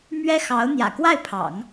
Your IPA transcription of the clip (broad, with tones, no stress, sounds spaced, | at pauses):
m ɥ ɛ˥ x ɑ˧˥ ʊ̯ n̪ j ä̰˨˩ k w a˥˩ ɪ̯ pʰ ɑ̰˨˩˦ ŋ